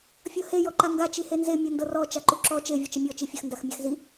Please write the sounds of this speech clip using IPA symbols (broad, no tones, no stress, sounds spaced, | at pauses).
fʲ ɤ h e j ɔ ǃ a ŋ ɡ a t͡ʃ i h e n z e mʲ ɤ n d ɤ r ɔ t͡ʃ a ǃ u ǁ ɔ t͡ʃ e vʲ ɤ t͡ʃ ə mʲ ɔ t͡ʃ i fʲ ə x n d a x mʲ a x z i